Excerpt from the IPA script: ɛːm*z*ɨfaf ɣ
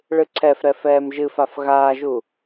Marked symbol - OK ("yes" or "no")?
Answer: no